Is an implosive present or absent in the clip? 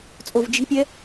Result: absent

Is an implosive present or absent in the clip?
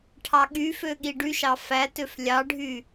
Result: present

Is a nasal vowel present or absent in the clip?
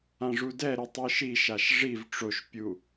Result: present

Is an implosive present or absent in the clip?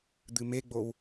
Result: absent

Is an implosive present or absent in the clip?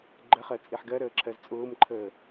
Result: absent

